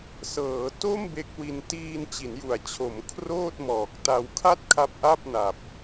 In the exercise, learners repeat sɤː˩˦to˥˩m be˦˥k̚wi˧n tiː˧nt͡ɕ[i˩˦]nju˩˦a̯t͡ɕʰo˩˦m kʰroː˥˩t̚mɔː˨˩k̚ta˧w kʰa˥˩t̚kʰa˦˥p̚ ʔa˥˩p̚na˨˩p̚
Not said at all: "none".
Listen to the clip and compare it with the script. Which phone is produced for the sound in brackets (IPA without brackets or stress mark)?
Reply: i˩˦